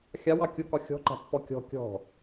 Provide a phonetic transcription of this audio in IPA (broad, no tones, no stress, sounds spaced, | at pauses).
xʲ ɑ w ɑ kʲ ʊ k ɒ xʲ ɔ̤ ǃ a̤ pː ɔ kʲ ɔ̤ kʲ ɔ̤